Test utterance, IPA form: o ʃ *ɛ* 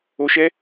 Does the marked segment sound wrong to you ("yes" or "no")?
no